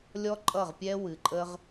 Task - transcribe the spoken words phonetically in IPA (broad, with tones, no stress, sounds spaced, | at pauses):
lʲ ɔ˦ ǃʼ ʌ˦˨ ʁ pʲ ɛ˦ w ɨ˨ ǃʼ ə˧ ʁ